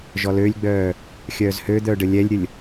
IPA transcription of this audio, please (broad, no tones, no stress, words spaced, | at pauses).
ʒɔlølʲɡ͡bœː | xʲœːzhød̪œː ɖəlʲɛlʲɾʲəlʲ